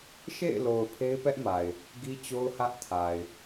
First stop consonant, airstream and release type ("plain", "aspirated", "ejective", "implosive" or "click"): aspirated